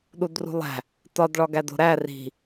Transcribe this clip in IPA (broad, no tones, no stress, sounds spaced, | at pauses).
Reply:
ɗ u d r ṳ lˠ æ̤ | t ɒ d ɭ ɒ ɡ æ d o̤ ɾ æ r i̤